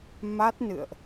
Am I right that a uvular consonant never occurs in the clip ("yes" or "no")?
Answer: yes